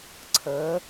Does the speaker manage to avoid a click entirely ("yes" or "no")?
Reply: no